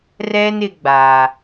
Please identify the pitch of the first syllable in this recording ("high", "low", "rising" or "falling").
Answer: high